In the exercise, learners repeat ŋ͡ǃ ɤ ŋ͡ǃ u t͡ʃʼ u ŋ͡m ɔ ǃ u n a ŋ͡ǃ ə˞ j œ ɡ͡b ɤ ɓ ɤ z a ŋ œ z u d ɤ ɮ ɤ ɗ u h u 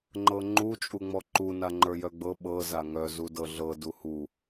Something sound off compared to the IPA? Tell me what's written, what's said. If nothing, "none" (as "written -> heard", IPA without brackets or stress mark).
ɗ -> d